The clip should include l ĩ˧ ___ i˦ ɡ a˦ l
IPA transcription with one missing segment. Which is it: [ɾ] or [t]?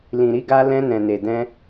ɾ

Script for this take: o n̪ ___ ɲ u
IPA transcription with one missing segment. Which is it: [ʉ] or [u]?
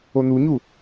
u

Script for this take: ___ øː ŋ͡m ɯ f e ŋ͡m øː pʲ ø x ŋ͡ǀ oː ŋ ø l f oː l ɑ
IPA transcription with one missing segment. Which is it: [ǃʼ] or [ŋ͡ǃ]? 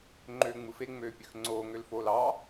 ŋ͡ǃ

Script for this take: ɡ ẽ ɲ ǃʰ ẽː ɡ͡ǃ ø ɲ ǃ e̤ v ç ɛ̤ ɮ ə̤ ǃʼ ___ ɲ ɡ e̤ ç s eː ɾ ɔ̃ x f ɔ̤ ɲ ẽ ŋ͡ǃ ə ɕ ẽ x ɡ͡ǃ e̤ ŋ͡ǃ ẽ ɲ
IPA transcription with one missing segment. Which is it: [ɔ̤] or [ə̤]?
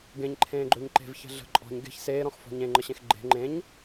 ɔ̤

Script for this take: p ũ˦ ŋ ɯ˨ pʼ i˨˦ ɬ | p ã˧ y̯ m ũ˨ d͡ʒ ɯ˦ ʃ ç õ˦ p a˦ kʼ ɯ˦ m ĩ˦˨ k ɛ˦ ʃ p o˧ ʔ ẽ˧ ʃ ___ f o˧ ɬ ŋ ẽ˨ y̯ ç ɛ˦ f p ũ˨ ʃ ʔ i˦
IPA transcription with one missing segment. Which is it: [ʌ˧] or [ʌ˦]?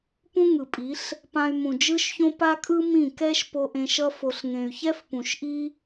ʌ˦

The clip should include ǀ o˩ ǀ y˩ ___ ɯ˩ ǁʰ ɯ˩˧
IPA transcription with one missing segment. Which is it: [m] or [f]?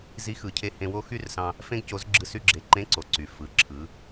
f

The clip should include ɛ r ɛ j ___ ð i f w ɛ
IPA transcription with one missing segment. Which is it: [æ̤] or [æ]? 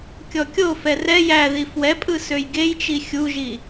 æ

